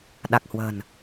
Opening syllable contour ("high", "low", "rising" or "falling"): low